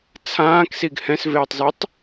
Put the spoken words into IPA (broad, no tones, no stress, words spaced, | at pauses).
t͡sʰãːksiɡ hɛ̃sveːtˤzitˤ